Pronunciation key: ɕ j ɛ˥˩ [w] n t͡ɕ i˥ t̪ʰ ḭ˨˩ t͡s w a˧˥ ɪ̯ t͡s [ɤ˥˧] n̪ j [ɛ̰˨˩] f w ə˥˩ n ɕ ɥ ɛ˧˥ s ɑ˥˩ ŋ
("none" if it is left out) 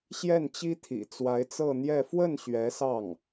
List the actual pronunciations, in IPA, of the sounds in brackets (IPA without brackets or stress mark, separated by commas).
none, ɤ˥˧, ɛ˥˧